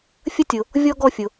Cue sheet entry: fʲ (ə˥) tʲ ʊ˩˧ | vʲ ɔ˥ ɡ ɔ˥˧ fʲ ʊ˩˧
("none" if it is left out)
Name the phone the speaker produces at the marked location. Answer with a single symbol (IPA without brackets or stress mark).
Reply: ə˥